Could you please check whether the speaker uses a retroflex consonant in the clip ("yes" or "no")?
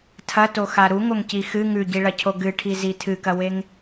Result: yes